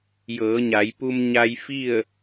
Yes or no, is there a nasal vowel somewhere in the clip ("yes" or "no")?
no